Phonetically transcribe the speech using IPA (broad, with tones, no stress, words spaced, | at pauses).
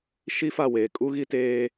ʃi˦fa˦˨weː˨ kʼu˦ɣi˦teː˦